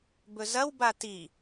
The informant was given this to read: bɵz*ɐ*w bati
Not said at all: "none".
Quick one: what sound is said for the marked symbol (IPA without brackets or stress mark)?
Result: ɐ